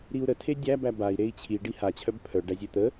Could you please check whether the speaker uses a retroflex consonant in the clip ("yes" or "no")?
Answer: yes